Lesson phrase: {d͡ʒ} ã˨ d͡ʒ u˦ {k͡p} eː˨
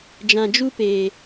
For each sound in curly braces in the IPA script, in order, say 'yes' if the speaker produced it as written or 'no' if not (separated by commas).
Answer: yes, no